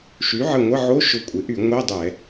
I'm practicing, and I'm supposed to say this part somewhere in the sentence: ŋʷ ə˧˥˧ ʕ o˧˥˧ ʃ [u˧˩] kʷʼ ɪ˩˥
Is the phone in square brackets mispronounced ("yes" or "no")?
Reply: yes